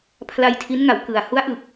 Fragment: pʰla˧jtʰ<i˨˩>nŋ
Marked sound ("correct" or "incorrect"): incorrect